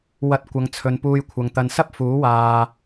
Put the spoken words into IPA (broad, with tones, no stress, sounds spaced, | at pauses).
w ɐ˧ t̚ kʷ ɐ˨ ŋ t͡sʰ ɵ˨ n p uː˧ j kʷʰ ɐ˨ ŋ t̪ ɐ˨ n s ɐ˥ p̚ f uː˨˥ w aː˨